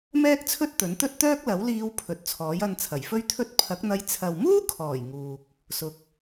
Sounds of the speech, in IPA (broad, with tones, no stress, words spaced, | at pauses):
mɛː˥k̚t͡sʰɵ˥t̚ t̪ɵ˨˥nt̪ɵ˥t̚t̪œː˥k̚ lɐ˨˥wliː˧w pʰɵ˨˥t̚t͡sʰɔː˨˥jɐ˧n t͡sʰɐ˨˩jfɵ˥ɥt̪ʰɵ˥t̚ pʰɐ˨˥k̚n̪ɐ˧j t͡sʰɐ˨wmuː˥kʰɔː˨˩j ŋuː˨k̚ | sʊ˧k̚